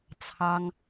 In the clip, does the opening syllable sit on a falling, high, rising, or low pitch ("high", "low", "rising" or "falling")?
high